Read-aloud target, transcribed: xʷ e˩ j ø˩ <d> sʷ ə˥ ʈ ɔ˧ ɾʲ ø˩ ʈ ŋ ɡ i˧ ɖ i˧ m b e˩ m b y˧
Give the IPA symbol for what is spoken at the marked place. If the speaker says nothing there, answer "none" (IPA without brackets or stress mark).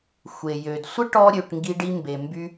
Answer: d